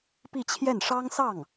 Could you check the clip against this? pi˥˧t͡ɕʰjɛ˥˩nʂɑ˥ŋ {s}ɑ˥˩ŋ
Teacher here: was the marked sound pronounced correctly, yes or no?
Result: yes